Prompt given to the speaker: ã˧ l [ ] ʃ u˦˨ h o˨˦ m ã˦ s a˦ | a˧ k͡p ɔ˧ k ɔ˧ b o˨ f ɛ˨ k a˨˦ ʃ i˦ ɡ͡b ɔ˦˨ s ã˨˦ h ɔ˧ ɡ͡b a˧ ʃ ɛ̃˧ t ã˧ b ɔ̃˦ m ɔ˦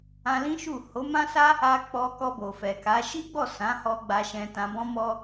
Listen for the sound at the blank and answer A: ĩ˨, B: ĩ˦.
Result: B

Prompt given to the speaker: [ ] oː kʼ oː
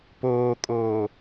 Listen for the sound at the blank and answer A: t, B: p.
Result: B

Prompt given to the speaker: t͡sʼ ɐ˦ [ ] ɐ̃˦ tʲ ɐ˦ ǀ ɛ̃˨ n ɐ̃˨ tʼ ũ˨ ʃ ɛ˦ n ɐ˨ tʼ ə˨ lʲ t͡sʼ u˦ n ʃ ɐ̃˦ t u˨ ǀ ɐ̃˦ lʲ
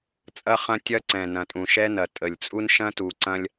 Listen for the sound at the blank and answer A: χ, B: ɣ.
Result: A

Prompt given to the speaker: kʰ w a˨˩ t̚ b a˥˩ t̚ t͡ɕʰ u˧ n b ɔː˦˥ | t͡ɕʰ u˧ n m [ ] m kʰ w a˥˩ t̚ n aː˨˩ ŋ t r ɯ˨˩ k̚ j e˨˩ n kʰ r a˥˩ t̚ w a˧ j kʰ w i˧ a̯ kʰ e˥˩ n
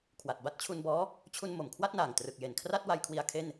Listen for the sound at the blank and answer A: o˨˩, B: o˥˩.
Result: A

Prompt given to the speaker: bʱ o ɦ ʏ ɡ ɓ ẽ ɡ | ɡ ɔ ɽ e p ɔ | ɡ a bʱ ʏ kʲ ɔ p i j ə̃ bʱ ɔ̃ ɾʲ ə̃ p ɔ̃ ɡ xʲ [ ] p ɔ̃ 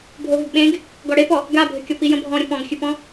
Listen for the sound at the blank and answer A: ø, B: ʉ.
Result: B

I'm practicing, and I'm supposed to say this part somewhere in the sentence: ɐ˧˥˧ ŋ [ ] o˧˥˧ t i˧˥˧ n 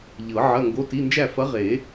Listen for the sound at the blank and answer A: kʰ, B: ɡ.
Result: B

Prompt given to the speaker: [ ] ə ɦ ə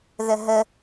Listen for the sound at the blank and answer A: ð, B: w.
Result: A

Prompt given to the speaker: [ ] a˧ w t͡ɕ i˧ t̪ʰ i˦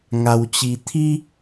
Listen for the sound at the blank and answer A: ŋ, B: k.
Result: A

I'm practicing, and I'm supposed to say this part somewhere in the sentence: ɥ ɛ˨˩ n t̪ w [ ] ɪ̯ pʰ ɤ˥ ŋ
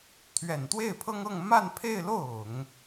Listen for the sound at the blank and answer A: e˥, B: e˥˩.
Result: B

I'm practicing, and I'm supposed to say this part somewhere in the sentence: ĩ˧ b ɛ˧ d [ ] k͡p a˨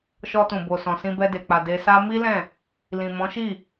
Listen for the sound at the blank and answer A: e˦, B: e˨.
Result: B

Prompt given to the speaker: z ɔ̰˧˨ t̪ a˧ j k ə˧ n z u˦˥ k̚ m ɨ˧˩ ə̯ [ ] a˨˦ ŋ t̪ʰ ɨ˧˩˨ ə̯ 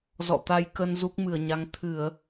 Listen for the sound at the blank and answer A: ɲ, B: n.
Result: A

